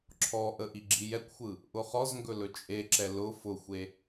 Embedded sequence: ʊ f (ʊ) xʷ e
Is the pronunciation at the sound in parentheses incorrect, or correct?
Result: correct